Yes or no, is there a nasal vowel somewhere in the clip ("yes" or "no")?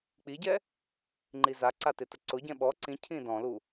yes